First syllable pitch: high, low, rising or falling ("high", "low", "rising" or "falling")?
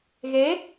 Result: rising